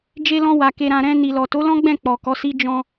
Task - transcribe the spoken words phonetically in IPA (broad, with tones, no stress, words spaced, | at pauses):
d͡ʒe˧lɔ̃˧ wa˨ ke˨ɾã˨ɾɛ̃˧ ni˨lɔ˨ to˨˦lɔ̃˦ɡ͡bɛ̃˦˨ k͡pɔ˨kɔ˨˦si˦ d͡ʒɔ̃˧